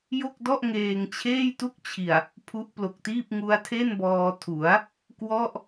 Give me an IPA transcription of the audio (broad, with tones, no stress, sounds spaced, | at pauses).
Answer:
j o˥˩ k̚ d ɔ˥˩ ʔ ŋ eː˧ ŋ t͡ɕʰ eː˥˩ j t u˥˩ k̚ t͡ɕʰ i˨˩ a̯ | pʰ u˦˥ ʔ p l o˨˩ k̚ t iː˥˩ p̚ ŋ u˦˥ a̯ tʰ e˥˩ n b ɔː˧ tʰ u˩˦ a̯ | k w ɔ˥˩ ʔ